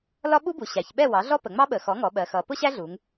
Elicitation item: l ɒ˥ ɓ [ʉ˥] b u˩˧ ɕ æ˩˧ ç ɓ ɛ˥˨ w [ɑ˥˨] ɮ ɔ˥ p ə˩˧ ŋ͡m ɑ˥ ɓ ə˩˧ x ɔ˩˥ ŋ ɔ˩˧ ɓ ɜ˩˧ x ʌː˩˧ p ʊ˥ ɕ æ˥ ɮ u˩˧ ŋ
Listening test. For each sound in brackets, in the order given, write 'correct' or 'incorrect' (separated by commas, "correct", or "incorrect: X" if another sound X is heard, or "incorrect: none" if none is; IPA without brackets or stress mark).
incorrect: u˥, incorrect: ɑ˩˥